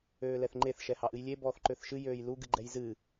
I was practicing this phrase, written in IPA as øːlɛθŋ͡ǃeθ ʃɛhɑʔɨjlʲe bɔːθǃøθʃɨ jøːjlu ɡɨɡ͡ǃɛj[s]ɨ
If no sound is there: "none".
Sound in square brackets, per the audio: z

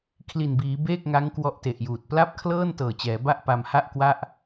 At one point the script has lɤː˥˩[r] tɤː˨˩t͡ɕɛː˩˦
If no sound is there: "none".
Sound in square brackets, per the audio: n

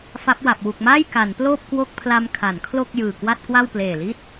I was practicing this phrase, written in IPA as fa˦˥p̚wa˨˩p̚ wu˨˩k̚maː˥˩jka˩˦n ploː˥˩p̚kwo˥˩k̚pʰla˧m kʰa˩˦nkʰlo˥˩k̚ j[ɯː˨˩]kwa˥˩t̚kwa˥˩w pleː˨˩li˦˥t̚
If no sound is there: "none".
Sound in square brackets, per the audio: ɯː˨˩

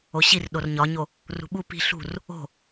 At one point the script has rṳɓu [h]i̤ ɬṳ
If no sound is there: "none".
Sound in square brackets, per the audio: p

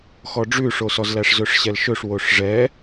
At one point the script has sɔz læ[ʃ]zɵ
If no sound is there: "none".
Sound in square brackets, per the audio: ʂ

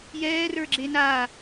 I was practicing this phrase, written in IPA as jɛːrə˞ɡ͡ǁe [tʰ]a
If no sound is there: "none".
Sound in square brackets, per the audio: n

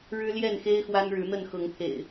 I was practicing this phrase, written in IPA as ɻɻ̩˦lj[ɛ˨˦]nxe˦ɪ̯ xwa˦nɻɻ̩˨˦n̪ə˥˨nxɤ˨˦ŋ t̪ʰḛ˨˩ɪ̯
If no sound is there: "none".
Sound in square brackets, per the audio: ɛ˥˨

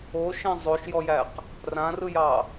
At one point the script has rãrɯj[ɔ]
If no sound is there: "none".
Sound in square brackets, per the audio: ɑ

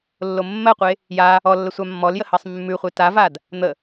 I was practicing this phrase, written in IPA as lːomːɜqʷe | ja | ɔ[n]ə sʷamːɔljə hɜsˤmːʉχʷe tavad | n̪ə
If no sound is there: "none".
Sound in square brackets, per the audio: lː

